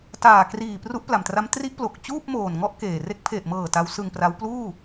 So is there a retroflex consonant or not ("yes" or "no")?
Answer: no